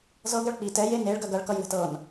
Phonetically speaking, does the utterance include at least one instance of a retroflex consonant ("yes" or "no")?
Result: yes